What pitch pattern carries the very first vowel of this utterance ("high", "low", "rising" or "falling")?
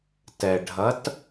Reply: low